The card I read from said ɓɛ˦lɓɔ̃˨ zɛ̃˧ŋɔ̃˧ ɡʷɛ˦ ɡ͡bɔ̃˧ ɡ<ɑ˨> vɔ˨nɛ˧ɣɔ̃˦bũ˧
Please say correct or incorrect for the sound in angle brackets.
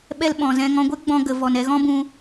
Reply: incorrect